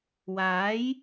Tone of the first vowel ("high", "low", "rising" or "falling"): rising